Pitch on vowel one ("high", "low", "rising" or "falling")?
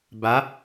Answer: rising